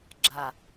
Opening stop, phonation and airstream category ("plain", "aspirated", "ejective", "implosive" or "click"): click